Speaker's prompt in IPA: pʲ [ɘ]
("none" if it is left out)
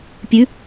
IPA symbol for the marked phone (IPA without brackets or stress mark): ʉ